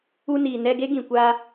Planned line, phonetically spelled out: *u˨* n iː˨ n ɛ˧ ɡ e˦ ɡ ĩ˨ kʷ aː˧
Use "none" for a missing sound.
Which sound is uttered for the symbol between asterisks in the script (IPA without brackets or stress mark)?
u˧